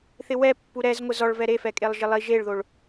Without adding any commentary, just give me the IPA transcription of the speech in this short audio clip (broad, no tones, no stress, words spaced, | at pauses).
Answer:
θɪwɛpːu ɾɛzŋʷɪ zɔɭvɛ ɾefɛkʼelˠ ʒɪlˠi ʒeɭðoɭ